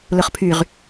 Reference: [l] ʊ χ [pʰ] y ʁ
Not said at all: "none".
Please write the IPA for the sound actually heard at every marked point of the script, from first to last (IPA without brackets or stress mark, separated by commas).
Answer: l, pʰ